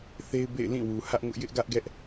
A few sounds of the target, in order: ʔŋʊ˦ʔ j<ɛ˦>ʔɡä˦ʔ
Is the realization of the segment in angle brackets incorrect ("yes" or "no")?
yes